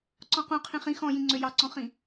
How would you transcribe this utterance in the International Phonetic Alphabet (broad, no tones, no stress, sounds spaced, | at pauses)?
ǀ ɔ̃ q ũ qʰ ĩ χ ĩ x ɔ̃ j ĩ ŋ͡ǀ ø j ɑ ǀ ɔ̃ χ ĩ